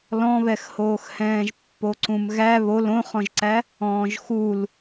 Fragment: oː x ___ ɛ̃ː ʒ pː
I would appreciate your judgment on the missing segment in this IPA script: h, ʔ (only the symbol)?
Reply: h